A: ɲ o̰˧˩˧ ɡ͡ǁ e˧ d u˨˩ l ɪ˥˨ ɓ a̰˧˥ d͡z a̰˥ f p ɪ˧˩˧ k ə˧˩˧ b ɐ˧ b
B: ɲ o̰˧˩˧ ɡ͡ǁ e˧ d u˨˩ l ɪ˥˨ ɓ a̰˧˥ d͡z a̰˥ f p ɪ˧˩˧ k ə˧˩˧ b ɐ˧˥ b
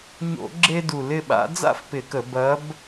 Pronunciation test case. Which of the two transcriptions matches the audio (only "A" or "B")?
B